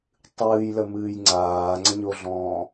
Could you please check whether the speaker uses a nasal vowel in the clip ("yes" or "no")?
yes